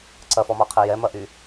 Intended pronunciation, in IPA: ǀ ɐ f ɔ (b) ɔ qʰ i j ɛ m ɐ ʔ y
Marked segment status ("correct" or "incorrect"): incorrect